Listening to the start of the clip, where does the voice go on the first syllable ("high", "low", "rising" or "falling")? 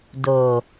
low